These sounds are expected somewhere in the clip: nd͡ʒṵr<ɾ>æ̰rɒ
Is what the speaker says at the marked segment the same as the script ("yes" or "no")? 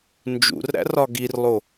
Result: yes